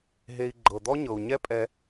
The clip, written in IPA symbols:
ɦ e˧ i̯ ɡ͡ǃ ɤ˨ d̪ ɔ˦ ɲ ɤ˨ u̯ ɲ ɛ˦ pʼ ɛ˧

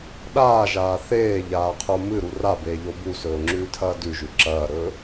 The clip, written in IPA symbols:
ɗ aː ʒ aː θ eː ʎ aː qʰ o m ɨ ɾ u r a b eː ʎ o b u s ɵː ŋ͡ǁ ʉː tʰ ɐː d ʉ ʒ ʉ ǁ ɐː ɾ ɵː

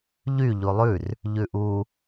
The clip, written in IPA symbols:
ʎ y ʎ u lˠ ʉ r | ʎ ʉ ʔ u

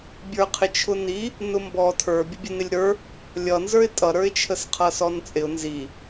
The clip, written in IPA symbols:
bʲ ə˞ qʰ ɪ t͡ʃʰ ʊ n i | n ʊ m b ɔ tʰ ə˞ bʲ ʊ bʲ ə n ɪ lʲ ɾ ə˞ | lʲ ʌ n z ə˞ ɪ̯ tʼ ʌ ɾ ə˞ ɪ̯ t͡ʃʰ ə s qʰ ʌ s ɔ n t͡sʼ ɪ ʊ̯ n z i

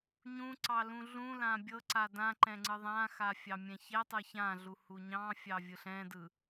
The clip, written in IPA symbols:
ɲ ũ ǀ ɑ l ũ ɮ ũ l ã bʲ ɤ ǀ a d ã ǃ ɛ̃ ŋ͡ǀ ɯ ðˤ ã x a fʲ ɑ mʲ ɛ̃ ç ɛ tˤ ɯ ç ã ɮ u h u ɲ ɑ̃ fʲ ɑ vʲ ɯ ɬ ɛ̃ d ɯ

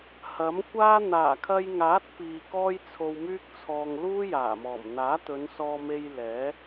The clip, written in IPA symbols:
h ɐ˨˥ m kʷ aː˥ n̪ aː˨˩ kʰ ɐ˧ j ŋ aː˨˥ t̚ p iː˨ k ɔː˥ j t͡sʰ o˧ w m yː˥ k̚ t͡sʰ ɔː˧ ŋ l uː˥ j aː˨˩ m ɔː˨˩ m n̪ aː˨˥ t̪ ɵ˨˧ n s ɔː˧ m e˧ j l ɛː˨˥

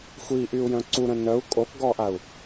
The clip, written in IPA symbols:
xʷ i ʔ y u̯ j œ̃ ǀ u ɾ ə̃ n œ u̯ kʼ o k ɡ ɔ ʔ a u̯

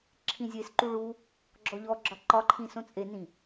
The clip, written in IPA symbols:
ǁʰ ĩ zʲ e s ǃ u ɭ u | ɡ͡ǁ ɔ ʎ ɔ ɡ͡ǁ ɒ ǃ ɒ ǃʰ ĩ s õ t͡sʼ e n ĩ

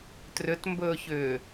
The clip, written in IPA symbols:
t r ʏ t m b ɵː ç ʏː

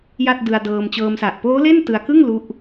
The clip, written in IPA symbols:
j a˥˩ t̚ d ɯ˧ a̯ d ɤː˧ m t͡ɕ ɤː˧ m s a˨˩ ʔ p oː˦˥ l e˥˩ n t ɯ˧ a̯ k ɯ˥˩ ŋ l u˦˥ ʔ

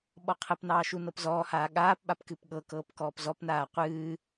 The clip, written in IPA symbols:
ɓ ɔ qʰ ə p n ɑː ʃ u n ɤ p z ɔː h aː ɠ aː p ɓ a p k ɨ p ɠ ɤ k ɤː p k ɔː p z ɔ p n aː qʷ ɨː

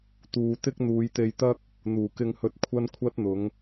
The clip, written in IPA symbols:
t̪ uː˨ t̪ ɪ˥ k̚ n̪ uː˨˧ j t̪ e˧ j t̪ ɐ˥ k̚ | n̪ uː˨˩ k ɪ˧ ŋ h ɵ˧ t̚ kʷʰ ɐ˥ n kʷʰ ɐ˥ t̚ n̪ ʊ˨˥ ŋ

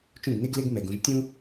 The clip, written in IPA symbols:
t͡ʃ ũ˥˩ ɡ n e˥ ɡ l e˥ ɡ m ɛ˧ ɡ ũ˧ ʒ tʲ ũ˥

